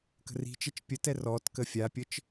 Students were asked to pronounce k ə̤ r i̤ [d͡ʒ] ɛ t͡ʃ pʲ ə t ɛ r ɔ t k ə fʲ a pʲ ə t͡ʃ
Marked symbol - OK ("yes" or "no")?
no